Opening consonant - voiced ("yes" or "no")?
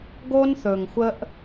yes